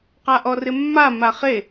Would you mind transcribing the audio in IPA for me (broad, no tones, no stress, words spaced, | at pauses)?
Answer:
qaʔɔrɪmːa maχe